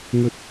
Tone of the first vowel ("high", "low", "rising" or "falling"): high